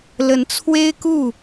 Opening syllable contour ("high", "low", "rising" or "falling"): rising